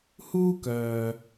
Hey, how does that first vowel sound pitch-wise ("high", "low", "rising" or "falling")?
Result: high